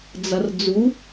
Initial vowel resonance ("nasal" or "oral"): oral